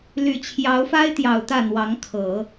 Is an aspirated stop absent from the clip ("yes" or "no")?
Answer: no